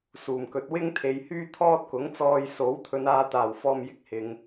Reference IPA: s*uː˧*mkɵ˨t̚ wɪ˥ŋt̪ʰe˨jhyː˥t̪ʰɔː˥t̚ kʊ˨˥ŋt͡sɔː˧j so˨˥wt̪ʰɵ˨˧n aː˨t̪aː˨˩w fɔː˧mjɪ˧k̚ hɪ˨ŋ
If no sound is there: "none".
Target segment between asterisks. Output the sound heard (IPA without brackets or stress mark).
uː˨˩